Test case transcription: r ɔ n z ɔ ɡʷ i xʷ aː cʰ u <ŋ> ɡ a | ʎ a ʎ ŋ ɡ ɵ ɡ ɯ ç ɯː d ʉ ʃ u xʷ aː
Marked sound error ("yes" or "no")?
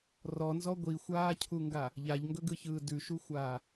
no